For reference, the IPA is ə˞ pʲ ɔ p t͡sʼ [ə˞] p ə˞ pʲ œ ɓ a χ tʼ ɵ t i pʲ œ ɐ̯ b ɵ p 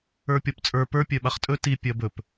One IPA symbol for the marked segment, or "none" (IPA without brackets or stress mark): ə˞